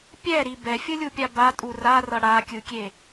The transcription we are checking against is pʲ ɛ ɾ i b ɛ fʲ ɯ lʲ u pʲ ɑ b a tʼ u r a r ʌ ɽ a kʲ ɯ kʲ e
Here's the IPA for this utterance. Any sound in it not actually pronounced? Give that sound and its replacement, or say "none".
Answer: ɑ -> a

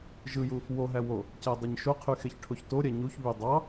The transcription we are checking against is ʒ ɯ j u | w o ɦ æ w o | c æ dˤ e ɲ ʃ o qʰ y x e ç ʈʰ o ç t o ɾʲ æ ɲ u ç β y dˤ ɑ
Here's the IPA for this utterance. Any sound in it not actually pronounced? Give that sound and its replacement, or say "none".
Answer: none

